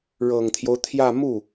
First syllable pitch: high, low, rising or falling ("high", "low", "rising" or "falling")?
low